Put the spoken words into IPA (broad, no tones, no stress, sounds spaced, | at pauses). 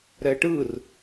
ɾ ɛ ʈ ɯ r